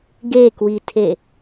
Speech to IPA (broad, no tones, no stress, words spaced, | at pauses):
ɡekwitʰe